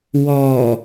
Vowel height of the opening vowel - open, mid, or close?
mid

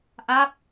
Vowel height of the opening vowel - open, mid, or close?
open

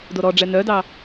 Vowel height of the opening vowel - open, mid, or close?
mid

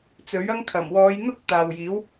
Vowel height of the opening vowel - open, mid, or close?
mid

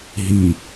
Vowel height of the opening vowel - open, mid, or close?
close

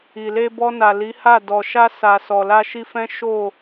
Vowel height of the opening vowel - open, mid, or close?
close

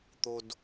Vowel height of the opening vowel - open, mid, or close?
mid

